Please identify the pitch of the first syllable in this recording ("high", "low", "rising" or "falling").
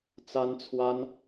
high